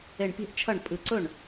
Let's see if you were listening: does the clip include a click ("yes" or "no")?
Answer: yes